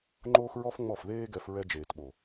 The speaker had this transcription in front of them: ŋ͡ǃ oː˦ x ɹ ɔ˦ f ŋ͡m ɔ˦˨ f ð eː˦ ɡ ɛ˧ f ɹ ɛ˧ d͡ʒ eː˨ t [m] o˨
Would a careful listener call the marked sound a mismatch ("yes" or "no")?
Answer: yes